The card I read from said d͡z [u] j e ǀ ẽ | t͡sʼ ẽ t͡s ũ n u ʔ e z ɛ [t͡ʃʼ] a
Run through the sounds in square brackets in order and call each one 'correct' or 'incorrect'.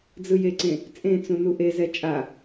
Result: incorrect: ɯ, correct

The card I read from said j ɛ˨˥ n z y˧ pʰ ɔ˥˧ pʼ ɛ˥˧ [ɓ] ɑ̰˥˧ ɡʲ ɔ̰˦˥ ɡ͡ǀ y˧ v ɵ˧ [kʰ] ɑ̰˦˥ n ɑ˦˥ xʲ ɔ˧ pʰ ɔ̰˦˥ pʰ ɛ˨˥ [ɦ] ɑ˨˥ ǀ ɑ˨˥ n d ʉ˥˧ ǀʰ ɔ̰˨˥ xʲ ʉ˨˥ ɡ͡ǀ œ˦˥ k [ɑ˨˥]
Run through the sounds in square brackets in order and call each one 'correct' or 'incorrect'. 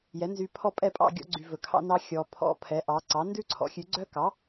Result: incorrect: pʼ, correct, incorrect: ʔ, correct

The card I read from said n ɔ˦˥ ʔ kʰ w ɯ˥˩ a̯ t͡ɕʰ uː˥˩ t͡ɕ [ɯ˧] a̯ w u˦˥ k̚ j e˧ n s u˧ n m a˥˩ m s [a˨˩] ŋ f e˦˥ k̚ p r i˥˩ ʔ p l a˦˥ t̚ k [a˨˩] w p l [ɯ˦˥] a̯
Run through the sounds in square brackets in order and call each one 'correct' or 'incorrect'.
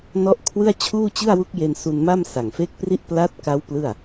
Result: incorrect: ɯ˥˩, correct, incorrect: a˦˥, incorrect: ɯ˥˩

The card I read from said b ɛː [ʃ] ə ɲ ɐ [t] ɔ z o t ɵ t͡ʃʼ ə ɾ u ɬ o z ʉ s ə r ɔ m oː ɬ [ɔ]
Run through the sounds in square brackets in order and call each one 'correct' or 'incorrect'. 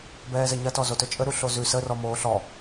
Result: incorrect: z, correct, correct

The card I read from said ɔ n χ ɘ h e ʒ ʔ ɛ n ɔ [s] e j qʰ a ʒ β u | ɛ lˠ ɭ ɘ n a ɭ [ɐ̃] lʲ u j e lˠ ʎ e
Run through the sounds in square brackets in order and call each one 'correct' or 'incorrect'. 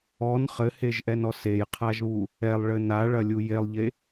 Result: correct, incorrect: ɐ

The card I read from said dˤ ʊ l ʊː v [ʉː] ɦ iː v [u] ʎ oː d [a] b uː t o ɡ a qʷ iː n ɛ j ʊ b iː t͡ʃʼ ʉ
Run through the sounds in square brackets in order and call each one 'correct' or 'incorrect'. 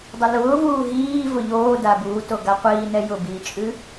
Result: incorrect: uː, incorrect: ʊ, correct

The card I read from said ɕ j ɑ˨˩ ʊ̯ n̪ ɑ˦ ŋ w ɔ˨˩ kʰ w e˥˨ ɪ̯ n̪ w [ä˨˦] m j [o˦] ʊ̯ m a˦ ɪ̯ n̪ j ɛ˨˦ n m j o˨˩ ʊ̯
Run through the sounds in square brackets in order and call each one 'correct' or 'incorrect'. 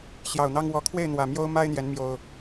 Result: incorrect: ä˨˩, correct

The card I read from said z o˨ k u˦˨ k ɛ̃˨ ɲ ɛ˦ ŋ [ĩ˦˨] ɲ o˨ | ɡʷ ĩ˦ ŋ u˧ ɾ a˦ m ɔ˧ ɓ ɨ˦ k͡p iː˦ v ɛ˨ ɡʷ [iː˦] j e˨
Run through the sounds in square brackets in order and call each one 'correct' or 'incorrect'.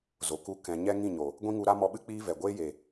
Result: correct, incorrect: eː˦

